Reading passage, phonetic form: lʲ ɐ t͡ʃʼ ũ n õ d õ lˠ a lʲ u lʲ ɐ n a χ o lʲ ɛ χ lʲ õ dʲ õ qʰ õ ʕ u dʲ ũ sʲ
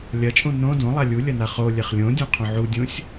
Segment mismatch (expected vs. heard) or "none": none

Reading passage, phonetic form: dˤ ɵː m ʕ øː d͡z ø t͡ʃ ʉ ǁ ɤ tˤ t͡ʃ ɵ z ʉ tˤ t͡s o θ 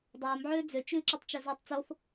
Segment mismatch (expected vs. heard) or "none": ɤ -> ɵ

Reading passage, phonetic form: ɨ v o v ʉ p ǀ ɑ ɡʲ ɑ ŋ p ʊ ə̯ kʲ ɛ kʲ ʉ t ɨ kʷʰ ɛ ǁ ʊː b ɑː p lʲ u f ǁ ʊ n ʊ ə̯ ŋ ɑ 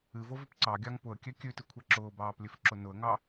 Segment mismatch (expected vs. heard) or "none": u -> ʉ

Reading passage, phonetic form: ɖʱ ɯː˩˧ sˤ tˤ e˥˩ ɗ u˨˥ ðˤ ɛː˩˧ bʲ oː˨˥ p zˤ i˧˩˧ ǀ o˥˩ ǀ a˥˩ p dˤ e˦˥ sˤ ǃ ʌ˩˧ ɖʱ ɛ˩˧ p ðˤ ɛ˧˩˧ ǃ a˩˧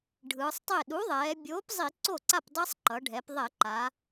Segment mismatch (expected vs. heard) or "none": none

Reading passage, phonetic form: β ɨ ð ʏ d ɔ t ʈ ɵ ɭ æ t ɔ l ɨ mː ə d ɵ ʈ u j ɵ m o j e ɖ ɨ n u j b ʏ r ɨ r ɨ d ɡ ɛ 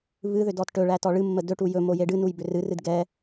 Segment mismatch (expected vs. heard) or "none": l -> ɭ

